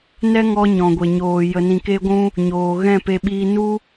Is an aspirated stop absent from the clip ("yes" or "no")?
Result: yes